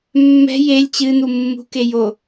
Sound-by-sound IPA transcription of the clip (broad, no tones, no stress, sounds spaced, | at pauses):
mː ɛ̤ j e lʲ t͡ɕ ɨ n̪ u mː ṳ k e j o